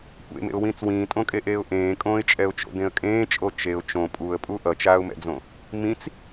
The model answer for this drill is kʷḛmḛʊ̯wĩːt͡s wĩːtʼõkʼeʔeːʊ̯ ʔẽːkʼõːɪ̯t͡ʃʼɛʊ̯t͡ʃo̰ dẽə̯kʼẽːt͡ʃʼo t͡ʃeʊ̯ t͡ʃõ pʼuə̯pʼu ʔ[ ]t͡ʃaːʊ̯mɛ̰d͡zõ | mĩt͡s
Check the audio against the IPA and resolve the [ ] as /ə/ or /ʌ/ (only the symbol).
ʌ